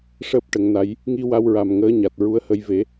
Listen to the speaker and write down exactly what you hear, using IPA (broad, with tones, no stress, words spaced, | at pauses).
ʂəː˦˥p̚ʈə˨˩˦ŋna˧˥j | ŋi˧wa˧wɹa˨˩m ŋəː˧˥ɲa˨˩t̚ɹu˧˥ə̯hə˧j ve˨˩˦